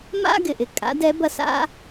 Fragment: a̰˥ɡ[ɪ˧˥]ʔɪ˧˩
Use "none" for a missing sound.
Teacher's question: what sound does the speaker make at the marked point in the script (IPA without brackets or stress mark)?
ɪ˧˩